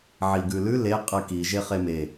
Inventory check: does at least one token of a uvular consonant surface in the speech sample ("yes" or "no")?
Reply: yes